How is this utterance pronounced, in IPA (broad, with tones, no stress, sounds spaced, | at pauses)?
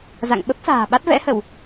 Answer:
z a̰˧˨ ŋ ɓ ə˦˥ p̚ s a̤ː˨˩ ɓ a˦˥ t̚ v ɛ̰˧˥ h ə˧˩˨ w